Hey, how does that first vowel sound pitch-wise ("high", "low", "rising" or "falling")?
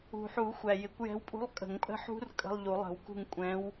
low